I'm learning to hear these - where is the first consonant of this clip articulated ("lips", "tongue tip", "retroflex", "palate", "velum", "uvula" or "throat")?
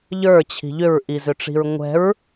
palate